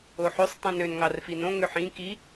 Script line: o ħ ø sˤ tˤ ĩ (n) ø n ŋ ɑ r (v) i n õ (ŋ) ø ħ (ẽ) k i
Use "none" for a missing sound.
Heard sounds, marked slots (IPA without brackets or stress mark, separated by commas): n, f, ŋ, ĩ